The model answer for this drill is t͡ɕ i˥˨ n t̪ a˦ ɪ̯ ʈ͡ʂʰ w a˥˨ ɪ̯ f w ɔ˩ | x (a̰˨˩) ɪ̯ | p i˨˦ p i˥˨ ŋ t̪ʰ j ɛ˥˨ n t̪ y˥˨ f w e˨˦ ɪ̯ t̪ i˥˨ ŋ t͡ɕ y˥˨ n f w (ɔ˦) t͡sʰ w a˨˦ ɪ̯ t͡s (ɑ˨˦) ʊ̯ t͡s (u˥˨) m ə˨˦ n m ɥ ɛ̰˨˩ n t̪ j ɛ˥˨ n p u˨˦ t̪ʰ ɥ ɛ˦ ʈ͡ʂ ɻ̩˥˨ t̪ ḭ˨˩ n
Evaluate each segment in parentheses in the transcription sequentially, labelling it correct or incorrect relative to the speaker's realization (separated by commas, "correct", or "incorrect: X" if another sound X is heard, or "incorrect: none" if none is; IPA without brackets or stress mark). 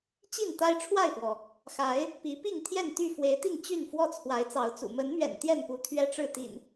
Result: incorrect: a˨˦, correct, correct, incorrect: ṵ˨˩